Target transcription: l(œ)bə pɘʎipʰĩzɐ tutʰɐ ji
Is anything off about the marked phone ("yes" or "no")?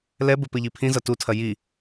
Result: yes